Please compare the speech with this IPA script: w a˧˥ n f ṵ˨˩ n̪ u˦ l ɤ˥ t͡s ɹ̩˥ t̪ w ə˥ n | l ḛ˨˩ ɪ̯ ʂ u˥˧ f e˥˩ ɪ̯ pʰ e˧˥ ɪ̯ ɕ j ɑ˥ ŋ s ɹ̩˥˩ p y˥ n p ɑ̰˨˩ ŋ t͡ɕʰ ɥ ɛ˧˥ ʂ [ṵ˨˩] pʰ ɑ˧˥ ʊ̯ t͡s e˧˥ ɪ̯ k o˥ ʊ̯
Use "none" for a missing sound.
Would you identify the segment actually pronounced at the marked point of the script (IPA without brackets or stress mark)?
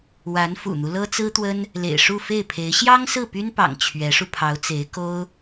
u˧